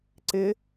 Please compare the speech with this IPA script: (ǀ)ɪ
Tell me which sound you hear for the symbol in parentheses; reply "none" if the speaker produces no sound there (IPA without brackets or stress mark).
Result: ǀ